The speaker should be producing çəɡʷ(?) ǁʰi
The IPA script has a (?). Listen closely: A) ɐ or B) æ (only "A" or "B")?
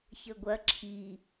A